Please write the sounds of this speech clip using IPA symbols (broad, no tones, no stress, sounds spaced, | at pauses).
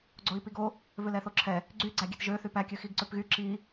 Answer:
ɡ͡ǀ o i̯ p i ɡ o | v ø l ɛ θ o ǁʰ ɛ | ɡ͡ǀ y ɡ͡ǀ æ ɡʲ e t ʒ ø θ y p æ kʲ ø x i ɡ ǀ ø p ɣ y ǁ i